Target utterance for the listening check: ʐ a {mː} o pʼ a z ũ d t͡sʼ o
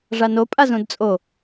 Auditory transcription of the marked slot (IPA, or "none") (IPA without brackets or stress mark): n